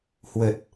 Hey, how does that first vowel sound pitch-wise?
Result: low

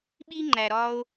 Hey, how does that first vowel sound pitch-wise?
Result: high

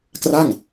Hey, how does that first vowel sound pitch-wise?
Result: falling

